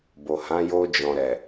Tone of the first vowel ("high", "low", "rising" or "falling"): low